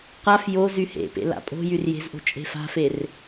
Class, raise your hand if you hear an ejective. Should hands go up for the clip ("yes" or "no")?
yes